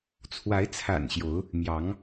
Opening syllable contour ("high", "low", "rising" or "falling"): rising